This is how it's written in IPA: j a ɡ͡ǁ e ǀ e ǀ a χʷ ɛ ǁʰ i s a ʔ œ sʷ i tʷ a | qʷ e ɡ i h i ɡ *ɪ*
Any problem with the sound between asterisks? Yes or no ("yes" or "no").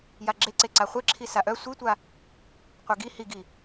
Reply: yes